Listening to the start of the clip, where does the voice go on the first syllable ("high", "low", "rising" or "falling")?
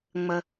low